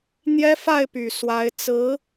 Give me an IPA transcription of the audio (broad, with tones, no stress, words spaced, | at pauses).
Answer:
n̪jɛ˥fa˥˩ɪ̯py˨˩ swa˧˥ɪ̯ t͡sɹ̩˧˥